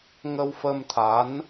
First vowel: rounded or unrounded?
unrounded